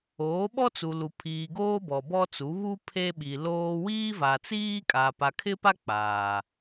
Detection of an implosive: present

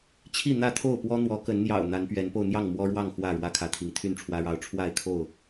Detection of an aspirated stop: present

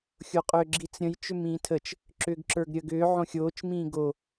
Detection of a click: present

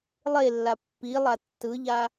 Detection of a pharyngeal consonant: absent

